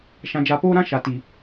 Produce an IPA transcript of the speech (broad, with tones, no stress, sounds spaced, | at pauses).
ʃ ã˨ d͡ʒ a˨ p oː˦ ɾ ã˦ ʃ a˨ t i˨